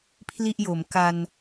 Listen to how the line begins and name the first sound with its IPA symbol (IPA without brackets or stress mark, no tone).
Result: pʰ